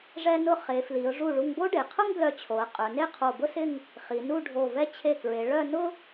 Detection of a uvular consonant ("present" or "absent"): present